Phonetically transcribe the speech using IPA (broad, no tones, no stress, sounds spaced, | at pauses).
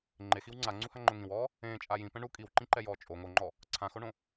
ŋ͡ǃ e x i w ŋ͡ǀ a ŋ͡ǀ u h a ŋ͡ǃ ʊ ŋ ĩ w ɔː | ẽː t͡ʃʼ a j ĩ p ɛ̃ ɳ u kʼ i w ǃ ĩ ǃ ɛ j ɔː t͡ʃʼ o ŋ o ŋ͡ǃ ɔ | ǀʰ ã x o ɳ õ